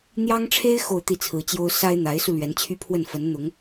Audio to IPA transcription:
n̪ j ɑ˥ ŋ ʈ͡ʂʰ e˥ ɪ̯ x o˥˧ ʊ̯ t̪ i˥˩ t͡sʰ ɹ̩˧˥ t͡ɕ j o˥ ʊ̯ s a˥ ɪ̯ n̪ a˧˥ ɪ̯ s u˧ l ɥ ɛ˧˥ n t͡ɕʰ y˥ pʰ w ə˥˩ n f ə˧˥ n n̪ ʊ˧˥ ŋ

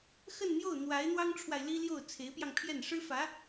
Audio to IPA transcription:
x ə˥˧ n n̪ j o˥˩ ʊ̯ n̪ w a˧˥ ɪ̯ n̪ w ɑ˥ ŋ ʈ͡ʂʰ w a˨ ɪ̯ l i˥ l j o˥˩ ʊ̯ t͡sʰ e˧˥ ɪ̯ p j ɑ˧ ŋ pʰ j ɛ˥˩ n ʂ ɻ̩˥ f ä˧˥

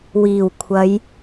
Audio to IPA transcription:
w iː˨˩ w kʷʰ ɐ˨˧ j

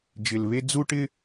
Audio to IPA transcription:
d͡ʒ ɪ˧ l β e˥ d͡z u˥ ʈ ɪ˥

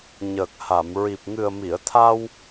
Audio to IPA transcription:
ɲ əː˨˩ k̚ h a˨˩˨ m ɹ i˨˩ p̚ ŋ ɨ˨˩ ə̯ m i˨˩˨ ə̯ t̪ʰ a˧ w

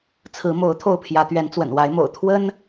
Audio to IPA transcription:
t͡sʰ ɹ̩˨˦ m o˨˦ ʊ̯ t̪ʰ o˥˨ ʊ̯ pʰ j ä˨˦ t̪ ɥ ɛ˨˦ n t͡s w ə̰˨˩ n w a˨˦ ɪ̯ m o̰˨˩ ʊ̯ t̪ʰ w ə˦ n

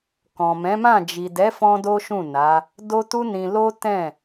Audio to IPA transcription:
k ɔ̃˨ m ɛ̃˨˦ m ã˦˨ d͡ʒ i˨ d ɛ˨˦ f ɔ̃˦ d o˦ ʃ ũ˦˨ n a˨˦ | d o˦ t u˦ n ĩ˧ l o˦ t ɛ̃˦˨

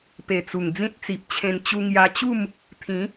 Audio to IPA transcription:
p e˨˩ t͡s u˨˩ ŋ d͡z ĩ˦ t̚ t͡s i˨ p̚ t͡ɕʰ ẽ˧ n t͡ɕ u˧ ŋ j a˧ t͡ɕ u˥˧ m | t̪ʰ ĩ˨˦

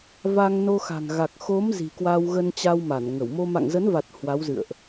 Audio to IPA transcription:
v a˧ ŋ n o˧ x a̤˨˩ ŋ ɣ a˨˩ k̚ x o˨˦ m z i̤˨˩ k w a˧ w ɣ ə˧ n t͡ɕ a˧ w m a˧˩ n ŋ ə˧˩ w m o˧ m a̰˧˨ ŋ z ə˨˦ n v a˨˩ t̚ h w a˨˦ w z ɨ̰˧˨ ə̯ ʔ

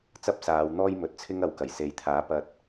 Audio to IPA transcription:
t͡s ɐ˥ p̚ s aː˨˧ w n̪ ɔː˥ j m ɵ˨˥ t̚ t͡sʰ ɪ˥ ŋ ɐ˨˥ w k ɐ˨˩ j s e˨ j t̪ʰ aː˨˥ p ɐ˧ t̚

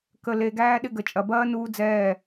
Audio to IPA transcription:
k ə˧ l e˧ ɡ æː˦ ɗ ɪ˧ ɡ ə˨ t͡ʃʼ ɐ˨ b ɐː˦ n uː˦ d͡z ɛː˦˨

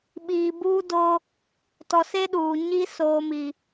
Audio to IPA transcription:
ɓ iː˨ b uː˦ d o˦ | t ɔ˨ s e˦ ɗ uː˨ ɲ i˦ s oː˨ m i˨

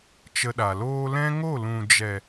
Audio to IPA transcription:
t͡ʃ ə˧ ɗ a˨ l oː˧ l ɛ̃˦ ŋ o˦˨ l ũ˨ d͡ʒ ɛ˨

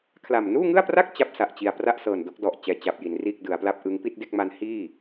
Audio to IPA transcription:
kʰ l a˨˩ m n uː˥˩ ŋ ɯ˥˩ a̯ p r a˥˩ k̚ t͡ɕ a˥˩ p̚ s a˨˩ ʔ t͡ɕ i˨˩ a̯ p r a˥˩ ʔ s ɤː˨˩ n d o˦˥ k̚ d ɔ˨˩ ʔ t͡ɕ ɛː˧ t͡ɕ a˨˩ p̚ j i˩˦ n r iː˥˩ k̚ d ɯ˩˦ a̯ p l a˦˥ p̚ ʔ ɯ˦˥ ŋ p i˥˩ t̚ d e˥˩ k̚ m a˦˥ n h iː˥˩

